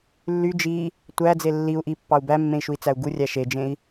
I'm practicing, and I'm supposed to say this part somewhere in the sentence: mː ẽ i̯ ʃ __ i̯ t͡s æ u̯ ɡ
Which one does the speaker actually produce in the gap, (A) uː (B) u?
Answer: B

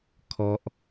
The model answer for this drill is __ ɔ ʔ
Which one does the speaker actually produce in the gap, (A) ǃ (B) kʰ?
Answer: B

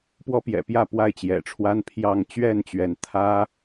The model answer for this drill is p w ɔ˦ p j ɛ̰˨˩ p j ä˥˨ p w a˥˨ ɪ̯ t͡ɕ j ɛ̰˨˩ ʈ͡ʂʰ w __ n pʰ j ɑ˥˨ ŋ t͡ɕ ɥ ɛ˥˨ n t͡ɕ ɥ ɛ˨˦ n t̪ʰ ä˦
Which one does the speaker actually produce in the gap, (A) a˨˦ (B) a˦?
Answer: B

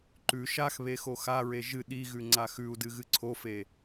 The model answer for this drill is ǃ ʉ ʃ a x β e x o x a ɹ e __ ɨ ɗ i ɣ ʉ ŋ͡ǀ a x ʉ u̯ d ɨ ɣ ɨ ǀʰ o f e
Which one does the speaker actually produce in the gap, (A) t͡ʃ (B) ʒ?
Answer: B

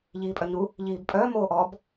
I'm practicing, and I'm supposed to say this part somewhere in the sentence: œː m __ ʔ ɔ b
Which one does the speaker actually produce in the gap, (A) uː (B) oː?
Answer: B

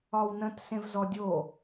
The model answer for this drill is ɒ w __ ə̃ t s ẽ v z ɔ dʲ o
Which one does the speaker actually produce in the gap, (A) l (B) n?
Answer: B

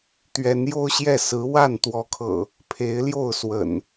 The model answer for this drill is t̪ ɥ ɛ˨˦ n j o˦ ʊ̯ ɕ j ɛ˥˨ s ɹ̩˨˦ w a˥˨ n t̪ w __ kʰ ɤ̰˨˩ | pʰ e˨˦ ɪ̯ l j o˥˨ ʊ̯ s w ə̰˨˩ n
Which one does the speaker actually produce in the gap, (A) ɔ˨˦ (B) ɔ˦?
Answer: A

